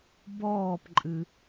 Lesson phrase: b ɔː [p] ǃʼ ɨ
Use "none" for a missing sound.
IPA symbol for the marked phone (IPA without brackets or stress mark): p